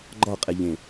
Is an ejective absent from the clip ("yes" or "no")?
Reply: no